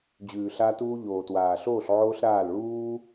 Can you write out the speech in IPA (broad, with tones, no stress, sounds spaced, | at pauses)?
d͡ʑ ʉː˨ ɬ a˧ t uː˧ ʎ oː˨ t w aː˨ ɬ oː˦˨ ɬ ʕ oː˦ ɬ ɾ aː˦˨ l ɭ uː˦